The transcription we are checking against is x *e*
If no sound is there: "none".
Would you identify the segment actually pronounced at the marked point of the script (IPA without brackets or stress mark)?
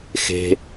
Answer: e̤